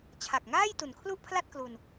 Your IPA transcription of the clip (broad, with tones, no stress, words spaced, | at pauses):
t͡ɕʰa˨˩k̚ŋaː˥˩j tu˨˩nkʰlu˥˩ʔpʰla˥˩t̚klu˧n